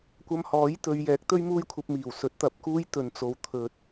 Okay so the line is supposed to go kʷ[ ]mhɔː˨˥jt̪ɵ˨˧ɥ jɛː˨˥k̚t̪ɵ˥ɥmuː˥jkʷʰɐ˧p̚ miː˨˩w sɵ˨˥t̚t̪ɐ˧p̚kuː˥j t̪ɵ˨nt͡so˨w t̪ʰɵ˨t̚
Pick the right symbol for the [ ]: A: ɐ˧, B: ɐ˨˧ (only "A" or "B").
A